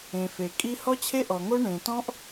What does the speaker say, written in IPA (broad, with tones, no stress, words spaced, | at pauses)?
ẽ˨fe˨ kʼi˦ hɔ˦t͡ɕʰe˦ʔɔ˨ŋo˦ ɳẽ˨ tɔ̃˦ʔ